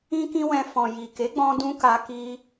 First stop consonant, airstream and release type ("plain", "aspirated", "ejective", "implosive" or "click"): plain